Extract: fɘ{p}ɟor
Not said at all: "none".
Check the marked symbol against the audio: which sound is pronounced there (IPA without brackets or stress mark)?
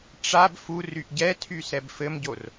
m